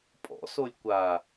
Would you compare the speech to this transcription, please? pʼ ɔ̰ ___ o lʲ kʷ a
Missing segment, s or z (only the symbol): s